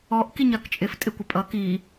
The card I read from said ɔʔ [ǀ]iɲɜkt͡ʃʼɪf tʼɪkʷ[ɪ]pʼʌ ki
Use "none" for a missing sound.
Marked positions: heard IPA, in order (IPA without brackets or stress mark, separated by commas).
k, ɪ